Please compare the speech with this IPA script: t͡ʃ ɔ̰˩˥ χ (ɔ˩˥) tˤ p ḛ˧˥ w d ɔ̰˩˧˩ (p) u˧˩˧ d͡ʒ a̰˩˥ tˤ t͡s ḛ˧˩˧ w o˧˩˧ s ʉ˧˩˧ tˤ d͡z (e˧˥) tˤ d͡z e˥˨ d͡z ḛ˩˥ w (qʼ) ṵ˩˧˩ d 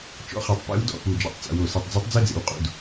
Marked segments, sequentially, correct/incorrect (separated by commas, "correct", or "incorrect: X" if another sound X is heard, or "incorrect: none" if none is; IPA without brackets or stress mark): correct, correct, correct, correct